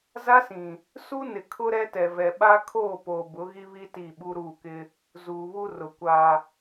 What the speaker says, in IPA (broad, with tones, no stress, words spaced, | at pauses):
za˦sĩ˨ | su˦nɪ˨ kʰʊ˦ɾɛ˦tɛ˨vɛ˨ ɓa˦kʰoː˦˨poː˨ bʊ˨˦ɣi˦βi˦ ti˦˨ɓu˦ ɾuː˦˨kɪ˦ | zuː˨βu˦ rʊ˨kʷa˨